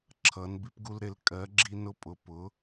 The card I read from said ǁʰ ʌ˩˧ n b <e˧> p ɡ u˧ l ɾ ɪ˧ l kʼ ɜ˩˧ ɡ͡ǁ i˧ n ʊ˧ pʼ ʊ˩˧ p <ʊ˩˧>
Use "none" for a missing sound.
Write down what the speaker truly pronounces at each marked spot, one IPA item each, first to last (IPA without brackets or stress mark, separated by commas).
i˧, ʊ˩˧